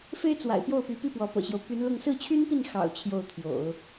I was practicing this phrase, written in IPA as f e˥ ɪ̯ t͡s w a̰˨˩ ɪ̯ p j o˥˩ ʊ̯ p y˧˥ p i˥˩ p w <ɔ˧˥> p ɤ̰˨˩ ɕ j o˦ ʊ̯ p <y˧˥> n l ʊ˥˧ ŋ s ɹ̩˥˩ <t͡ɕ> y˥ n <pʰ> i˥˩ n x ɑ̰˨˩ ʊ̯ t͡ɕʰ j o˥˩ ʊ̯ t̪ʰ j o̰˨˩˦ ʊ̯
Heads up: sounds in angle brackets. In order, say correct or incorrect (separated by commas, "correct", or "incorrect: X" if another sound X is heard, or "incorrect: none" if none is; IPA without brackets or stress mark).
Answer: correct, correct, incorrect: t͡ɕʰ, incorrect: p